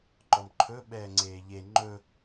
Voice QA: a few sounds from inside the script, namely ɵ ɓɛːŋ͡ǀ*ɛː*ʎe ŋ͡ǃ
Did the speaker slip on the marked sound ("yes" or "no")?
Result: yes